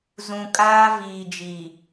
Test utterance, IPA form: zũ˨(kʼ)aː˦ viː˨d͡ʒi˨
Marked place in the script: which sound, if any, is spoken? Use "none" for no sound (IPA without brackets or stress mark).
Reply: kʼ